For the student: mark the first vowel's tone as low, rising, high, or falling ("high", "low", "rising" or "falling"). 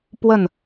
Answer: falling